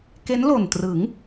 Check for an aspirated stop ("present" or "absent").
absent